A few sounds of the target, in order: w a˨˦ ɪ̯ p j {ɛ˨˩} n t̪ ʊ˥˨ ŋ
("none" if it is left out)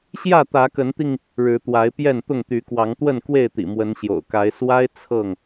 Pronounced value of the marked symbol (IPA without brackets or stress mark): ɛ˥˨